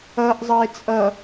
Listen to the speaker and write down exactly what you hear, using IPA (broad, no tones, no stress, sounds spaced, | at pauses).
ʌ ʔ zˤ ʌ ɪ̯ t͡sʼ ʌ